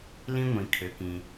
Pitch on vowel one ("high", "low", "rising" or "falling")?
high